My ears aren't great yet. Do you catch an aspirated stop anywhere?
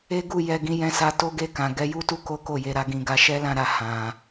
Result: no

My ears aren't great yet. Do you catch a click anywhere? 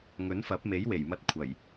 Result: no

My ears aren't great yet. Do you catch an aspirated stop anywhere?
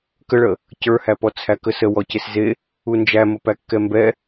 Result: yes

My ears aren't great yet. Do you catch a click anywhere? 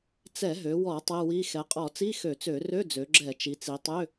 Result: yes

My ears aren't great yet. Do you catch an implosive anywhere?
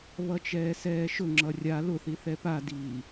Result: no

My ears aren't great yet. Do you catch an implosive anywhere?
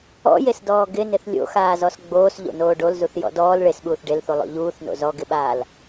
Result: yes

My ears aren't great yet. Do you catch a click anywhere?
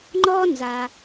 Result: yes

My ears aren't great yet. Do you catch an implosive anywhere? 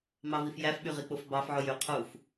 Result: yes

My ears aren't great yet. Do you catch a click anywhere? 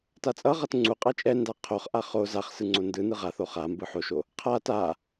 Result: yes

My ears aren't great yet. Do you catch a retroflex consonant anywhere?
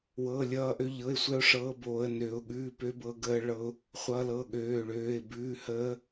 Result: yes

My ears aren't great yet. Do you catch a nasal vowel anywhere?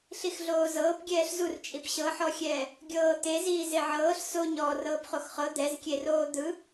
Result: no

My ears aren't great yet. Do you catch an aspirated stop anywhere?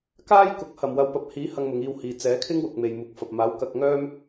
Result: yes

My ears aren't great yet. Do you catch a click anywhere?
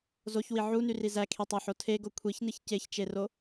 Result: no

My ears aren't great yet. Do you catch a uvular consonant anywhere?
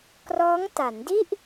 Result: no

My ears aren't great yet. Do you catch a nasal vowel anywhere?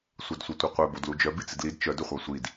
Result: no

